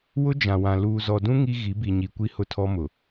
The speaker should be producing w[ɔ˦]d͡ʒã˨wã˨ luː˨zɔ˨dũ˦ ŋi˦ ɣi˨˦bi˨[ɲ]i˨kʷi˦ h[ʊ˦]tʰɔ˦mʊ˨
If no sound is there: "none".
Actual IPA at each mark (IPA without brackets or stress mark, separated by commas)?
ʊ˦, ɲ, ʊ˦